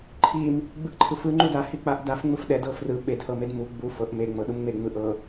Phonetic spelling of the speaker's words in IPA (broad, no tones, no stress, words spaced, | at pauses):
ǃʰim | ɡ͡bɯʔǃʰɯfɯ ŋ͡ǃuda hik͡paʔdaf ŋ͡mɯfɗɛd ɤfrɯ ɓed hɤmedmu ɡ͡bu fɤʔ me ŋ͡mɤɗumŋ͡me ŋ͡mɯʔɤ